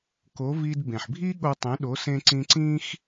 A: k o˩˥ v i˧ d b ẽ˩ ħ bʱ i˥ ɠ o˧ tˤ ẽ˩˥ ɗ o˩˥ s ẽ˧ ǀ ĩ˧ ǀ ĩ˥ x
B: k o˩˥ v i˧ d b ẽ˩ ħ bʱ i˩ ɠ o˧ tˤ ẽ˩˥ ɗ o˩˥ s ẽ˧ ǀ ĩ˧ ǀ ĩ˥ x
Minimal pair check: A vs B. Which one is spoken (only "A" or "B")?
A